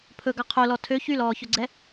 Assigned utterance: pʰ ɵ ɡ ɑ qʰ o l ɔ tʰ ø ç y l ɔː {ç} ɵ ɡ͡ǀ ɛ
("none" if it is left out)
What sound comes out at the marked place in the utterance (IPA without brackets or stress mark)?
ç